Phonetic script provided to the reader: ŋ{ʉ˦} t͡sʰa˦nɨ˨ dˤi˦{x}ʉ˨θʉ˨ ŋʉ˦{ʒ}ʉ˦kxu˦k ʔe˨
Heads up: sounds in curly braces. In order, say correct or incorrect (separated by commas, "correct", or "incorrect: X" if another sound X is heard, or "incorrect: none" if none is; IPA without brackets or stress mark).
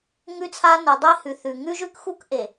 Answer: correct, incorrect: h, correct